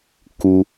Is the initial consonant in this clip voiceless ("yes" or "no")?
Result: yes